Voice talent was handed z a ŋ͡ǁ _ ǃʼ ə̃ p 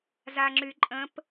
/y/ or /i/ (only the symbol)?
y